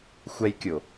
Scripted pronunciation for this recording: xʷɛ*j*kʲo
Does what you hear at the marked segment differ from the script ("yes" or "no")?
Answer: no